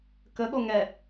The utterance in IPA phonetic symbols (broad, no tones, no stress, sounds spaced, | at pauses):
k ə ɠ o ŋ ɛ